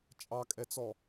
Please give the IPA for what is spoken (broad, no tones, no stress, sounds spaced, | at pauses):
t͡ʃʼ ɑ kʼ ɛ t͡s ɔ